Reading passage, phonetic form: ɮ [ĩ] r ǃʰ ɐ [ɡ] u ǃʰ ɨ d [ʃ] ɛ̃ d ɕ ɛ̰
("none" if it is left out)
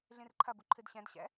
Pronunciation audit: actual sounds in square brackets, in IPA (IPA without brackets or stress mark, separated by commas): ĩ, b, ɕ